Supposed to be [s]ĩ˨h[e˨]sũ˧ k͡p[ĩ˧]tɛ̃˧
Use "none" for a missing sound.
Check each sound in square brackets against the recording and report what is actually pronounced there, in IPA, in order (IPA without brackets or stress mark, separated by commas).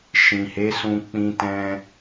ʃ, e˨˦, ĩ˧